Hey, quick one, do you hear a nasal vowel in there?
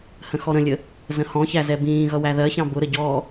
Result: yes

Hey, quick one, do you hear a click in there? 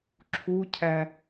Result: yes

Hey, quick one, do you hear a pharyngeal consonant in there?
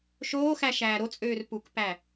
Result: no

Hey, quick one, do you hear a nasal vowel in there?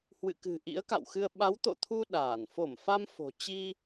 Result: no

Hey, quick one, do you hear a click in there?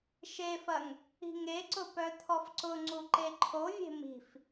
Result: yes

